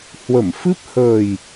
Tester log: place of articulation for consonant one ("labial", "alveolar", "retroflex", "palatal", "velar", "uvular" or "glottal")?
glottal